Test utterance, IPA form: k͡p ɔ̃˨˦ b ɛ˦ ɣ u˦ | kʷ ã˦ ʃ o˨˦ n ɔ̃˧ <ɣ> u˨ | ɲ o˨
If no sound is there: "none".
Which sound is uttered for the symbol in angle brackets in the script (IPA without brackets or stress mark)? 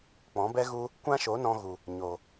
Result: ɣ